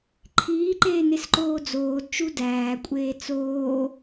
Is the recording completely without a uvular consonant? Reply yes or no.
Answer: yes